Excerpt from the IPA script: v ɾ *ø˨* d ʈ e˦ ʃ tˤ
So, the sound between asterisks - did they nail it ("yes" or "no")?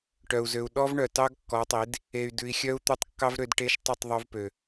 no